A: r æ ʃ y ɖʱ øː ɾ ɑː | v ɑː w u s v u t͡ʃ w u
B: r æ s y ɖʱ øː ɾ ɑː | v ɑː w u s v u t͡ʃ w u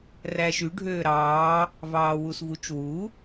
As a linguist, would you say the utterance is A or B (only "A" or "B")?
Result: A